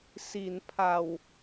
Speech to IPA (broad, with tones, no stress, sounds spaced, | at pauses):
s i˩˦ n pʰ a˨˩ w